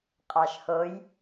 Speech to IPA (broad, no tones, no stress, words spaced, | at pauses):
qʼɑʃhoj